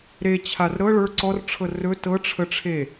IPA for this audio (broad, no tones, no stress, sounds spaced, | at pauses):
ɾ e t͡ɕʰ a r ɾ ɤ ɭ ə˞ ǀ ɔ r ʈ͡ʂʰ ɤ r ɵ t ɤ ʈ͡ʂʰ ə ʈ͡ʂʰ e